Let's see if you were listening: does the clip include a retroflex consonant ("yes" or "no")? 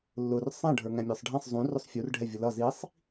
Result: yes